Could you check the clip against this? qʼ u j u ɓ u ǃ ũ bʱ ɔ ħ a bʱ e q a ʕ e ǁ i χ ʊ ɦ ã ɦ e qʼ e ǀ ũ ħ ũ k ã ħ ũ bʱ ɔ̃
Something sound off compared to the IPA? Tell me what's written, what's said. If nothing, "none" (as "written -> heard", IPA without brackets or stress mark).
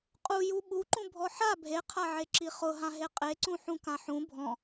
q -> qʰ